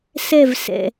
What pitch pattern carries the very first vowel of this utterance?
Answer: falling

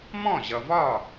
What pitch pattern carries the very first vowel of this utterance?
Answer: falling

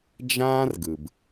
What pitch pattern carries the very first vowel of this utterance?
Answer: high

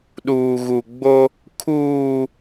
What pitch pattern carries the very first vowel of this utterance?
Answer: low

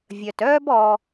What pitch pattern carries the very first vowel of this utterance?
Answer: low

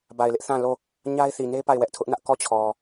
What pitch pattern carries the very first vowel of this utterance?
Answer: low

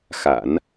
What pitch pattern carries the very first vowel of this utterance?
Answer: low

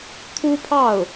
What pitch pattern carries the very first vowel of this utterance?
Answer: high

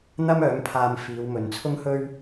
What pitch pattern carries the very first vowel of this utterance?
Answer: high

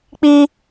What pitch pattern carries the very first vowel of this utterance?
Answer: high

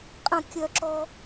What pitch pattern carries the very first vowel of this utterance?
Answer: falling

